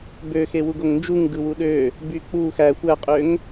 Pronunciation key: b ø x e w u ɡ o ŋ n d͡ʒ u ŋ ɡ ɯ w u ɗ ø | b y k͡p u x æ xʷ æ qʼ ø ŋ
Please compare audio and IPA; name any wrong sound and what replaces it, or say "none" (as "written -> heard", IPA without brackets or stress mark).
none